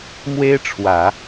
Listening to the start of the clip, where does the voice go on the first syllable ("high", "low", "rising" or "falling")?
high